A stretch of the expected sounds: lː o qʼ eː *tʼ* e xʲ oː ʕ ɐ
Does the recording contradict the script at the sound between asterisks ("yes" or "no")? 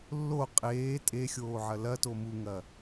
no